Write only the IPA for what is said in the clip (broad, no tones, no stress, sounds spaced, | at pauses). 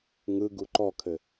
ŋ ɯ ɡ u ǃ ɔ kʰ ɘ